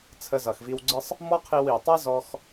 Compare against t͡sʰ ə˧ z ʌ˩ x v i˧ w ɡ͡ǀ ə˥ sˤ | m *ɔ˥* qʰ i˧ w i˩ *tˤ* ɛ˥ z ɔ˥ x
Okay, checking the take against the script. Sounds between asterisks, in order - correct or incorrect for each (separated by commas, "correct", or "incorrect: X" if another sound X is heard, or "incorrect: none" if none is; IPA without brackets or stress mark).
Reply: correct, correct